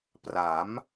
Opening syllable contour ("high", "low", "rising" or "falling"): rising